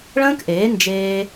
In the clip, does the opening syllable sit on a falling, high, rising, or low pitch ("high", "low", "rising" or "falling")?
high